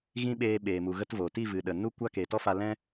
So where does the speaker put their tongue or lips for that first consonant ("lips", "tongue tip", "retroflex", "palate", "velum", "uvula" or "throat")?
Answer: velum